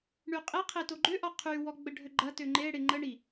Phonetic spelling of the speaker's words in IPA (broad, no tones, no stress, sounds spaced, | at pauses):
ɳ y qʼ e qʰ e t o ɡ͡ǃ ø ʔ ɔ qʰ y w ɔ ɡ͡b ə ɖʱ ø ɡ͡ǃ ɐ t ø ŋ͡ǃ e ɽ e ŋ͡ǃ ə ɳ i